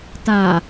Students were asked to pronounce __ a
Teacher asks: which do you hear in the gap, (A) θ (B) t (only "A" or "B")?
B